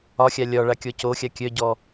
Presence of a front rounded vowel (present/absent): present